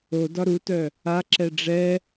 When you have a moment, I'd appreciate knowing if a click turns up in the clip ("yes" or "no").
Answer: yes